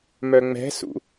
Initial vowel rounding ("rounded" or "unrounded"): rounded